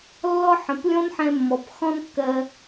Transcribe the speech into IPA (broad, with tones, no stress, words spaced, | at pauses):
lːɔ˦ħə̃˨˦plʲɔ̃˦n ħɛ̃˦mːɔ˧p xɔ̃˦nkːɜ˧